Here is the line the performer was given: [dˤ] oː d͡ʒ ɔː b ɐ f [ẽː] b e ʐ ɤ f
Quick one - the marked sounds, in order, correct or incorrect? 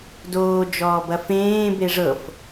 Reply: incorrect, correct

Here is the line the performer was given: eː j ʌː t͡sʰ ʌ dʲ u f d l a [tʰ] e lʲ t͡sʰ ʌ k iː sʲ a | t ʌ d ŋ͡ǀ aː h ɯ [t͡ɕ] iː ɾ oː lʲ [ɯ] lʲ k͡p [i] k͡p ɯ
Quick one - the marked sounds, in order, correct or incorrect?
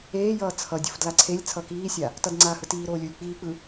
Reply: incorrect, incorrect, incorrect, incorrect

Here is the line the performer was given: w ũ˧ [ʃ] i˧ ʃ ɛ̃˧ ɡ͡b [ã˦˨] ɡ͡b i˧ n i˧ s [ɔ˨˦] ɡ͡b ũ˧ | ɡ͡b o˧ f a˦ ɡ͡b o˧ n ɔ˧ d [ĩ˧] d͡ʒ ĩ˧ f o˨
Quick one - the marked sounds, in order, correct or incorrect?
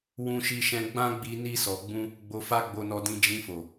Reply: correct, incorrect, incorrect, correct

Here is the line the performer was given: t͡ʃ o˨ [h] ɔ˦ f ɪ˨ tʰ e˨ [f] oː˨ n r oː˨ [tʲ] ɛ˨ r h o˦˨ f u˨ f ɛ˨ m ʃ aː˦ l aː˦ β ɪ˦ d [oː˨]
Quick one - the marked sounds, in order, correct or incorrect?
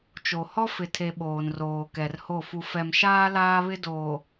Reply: correct, incorrect, incorrect, correct

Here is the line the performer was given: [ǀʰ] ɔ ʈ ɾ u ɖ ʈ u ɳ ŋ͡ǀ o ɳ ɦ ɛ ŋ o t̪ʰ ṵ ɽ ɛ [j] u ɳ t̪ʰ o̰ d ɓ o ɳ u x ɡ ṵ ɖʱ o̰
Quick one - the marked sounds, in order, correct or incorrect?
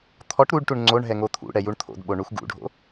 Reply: incorrect, correct

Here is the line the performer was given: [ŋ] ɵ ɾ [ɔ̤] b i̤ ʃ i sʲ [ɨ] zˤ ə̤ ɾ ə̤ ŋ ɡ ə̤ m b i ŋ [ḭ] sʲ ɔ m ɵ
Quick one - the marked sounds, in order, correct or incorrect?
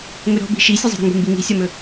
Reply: correct, correct, correct, incorrect

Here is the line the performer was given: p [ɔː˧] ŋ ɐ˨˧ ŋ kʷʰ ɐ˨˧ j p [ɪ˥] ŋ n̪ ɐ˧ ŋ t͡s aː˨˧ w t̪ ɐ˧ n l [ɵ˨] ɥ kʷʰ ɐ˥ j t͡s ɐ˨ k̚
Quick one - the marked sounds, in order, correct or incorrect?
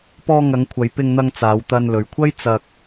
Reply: correct, incorrect, correct

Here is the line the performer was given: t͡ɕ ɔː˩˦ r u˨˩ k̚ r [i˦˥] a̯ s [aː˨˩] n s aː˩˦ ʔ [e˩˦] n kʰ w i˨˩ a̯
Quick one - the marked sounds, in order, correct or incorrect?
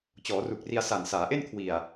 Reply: incorrect, incorrect, incorrect

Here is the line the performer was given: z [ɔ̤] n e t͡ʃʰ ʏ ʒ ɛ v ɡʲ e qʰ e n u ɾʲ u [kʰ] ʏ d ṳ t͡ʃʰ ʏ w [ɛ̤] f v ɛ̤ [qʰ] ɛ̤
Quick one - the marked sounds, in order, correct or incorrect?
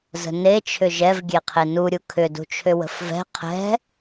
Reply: incorrect, correct, incorrect, correct

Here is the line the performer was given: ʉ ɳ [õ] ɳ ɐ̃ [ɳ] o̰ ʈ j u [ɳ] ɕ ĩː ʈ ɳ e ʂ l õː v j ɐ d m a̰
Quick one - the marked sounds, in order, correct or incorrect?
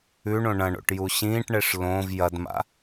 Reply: correct, correct, incorrect

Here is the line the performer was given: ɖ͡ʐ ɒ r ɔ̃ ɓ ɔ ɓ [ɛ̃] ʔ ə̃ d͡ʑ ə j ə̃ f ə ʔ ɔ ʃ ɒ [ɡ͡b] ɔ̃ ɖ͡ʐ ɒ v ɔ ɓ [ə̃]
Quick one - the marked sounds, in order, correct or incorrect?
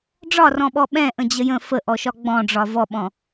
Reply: correct, correct, incorrect

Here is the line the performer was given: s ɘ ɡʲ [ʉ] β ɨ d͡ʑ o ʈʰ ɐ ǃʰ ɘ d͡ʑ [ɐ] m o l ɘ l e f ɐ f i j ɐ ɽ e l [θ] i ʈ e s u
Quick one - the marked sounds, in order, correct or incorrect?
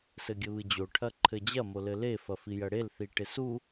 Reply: incorrect, correct, correct

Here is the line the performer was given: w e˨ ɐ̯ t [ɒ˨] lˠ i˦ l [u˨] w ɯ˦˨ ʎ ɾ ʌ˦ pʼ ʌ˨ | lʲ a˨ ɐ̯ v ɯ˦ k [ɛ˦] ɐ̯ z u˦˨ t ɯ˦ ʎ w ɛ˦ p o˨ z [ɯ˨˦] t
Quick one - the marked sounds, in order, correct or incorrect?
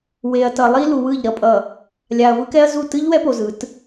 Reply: incorrect, correct, correct, correct

